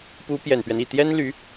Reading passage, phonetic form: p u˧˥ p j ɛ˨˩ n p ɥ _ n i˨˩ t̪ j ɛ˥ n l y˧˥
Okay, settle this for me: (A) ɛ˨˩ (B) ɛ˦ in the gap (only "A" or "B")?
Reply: B